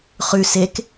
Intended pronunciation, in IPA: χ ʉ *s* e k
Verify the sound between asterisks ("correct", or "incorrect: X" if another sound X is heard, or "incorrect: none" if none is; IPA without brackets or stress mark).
correct